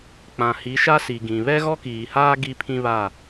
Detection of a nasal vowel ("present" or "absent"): present